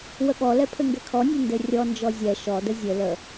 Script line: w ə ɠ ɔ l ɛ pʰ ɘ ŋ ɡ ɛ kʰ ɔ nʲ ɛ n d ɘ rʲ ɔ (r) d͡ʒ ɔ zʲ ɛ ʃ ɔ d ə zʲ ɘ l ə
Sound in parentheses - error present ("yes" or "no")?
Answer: yes